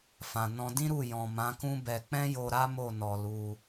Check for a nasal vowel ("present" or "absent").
present